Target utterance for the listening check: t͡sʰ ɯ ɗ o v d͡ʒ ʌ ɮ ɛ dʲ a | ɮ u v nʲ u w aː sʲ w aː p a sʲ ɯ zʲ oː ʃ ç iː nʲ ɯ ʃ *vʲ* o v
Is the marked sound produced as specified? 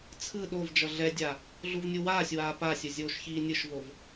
no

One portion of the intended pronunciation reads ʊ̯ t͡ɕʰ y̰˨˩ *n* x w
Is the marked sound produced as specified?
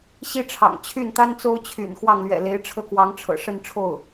yes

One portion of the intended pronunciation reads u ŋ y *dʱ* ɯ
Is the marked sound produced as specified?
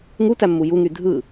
yes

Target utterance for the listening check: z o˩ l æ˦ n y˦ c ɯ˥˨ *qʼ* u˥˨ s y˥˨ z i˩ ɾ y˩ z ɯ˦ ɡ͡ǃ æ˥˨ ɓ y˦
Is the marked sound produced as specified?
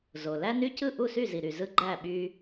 no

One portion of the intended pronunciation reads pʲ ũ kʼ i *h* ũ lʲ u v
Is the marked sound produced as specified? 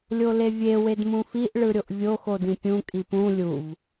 no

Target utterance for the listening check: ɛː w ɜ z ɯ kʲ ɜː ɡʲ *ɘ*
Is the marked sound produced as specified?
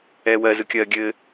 yes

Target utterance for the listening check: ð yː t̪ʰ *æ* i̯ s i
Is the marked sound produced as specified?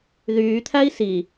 yes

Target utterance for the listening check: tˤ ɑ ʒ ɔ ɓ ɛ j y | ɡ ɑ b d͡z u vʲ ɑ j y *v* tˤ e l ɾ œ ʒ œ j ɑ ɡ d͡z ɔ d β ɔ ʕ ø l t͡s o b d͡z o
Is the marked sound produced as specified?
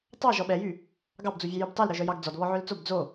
no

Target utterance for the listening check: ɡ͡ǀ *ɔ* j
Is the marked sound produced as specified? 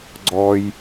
yes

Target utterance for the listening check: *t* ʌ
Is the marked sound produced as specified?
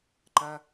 no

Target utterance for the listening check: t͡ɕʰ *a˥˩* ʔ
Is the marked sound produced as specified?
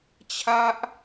no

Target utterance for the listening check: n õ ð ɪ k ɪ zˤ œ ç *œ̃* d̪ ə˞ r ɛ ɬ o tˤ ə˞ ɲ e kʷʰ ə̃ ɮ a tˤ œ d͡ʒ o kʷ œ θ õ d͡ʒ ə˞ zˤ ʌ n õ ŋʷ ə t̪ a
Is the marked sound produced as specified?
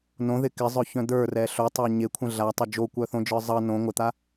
yes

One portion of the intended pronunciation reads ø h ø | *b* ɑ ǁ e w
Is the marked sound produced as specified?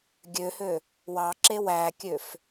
no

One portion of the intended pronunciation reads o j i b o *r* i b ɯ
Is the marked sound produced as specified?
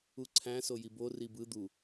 yes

